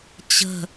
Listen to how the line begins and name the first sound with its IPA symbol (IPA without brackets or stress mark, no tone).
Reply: t͡ɕ